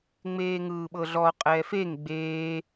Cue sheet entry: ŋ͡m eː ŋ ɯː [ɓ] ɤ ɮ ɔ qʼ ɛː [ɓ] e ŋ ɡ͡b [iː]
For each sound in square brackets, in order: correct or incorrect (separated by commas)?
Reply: correct, incorrect, incorrect